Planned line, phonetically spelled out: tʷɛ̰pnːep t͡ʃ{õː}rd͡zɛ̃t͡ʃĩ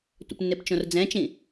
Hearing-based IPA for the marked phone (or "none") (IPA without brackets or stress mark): õ